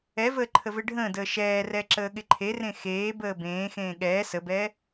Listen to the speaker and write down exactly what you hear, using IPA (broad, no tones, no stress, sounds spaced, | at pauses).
ɛ v əː ǃʰ ə v e ɖʱ ə̃ː d əː ʃ ɛː r ɛ ǁ əː ɠ ɪ ǃʰ e r ẽ x eː b əː b ẽː x ẽː ɠ ɛː s ə b ɛː